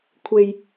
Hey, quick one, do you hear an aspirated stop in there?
yes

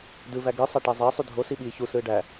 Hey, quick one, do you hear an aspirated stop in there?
no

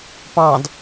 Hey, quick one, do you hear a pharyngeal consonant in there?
no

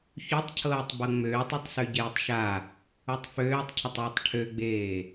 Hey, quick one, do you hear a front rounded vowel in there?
yes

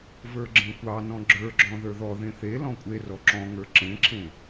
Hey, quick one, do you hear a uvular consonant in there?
no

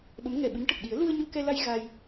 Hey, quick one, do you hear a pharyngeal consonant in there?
no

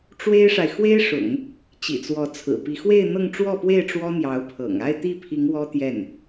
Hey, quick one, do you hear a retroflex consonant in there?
yes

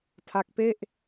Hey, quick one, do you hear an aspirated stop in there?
yes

